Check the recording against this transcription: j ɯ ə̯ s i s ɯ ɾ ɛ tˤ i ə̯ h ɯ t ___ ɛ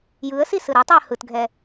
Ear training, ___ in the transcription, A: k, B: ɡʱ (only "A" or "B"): B